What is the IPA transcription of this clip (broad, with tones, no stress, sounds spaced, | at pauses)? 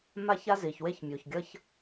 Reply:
m a˦ ç a˦ z i˨ ç w e˦ ç mʲ u˨ ç ɡʲ ʌ˦ ç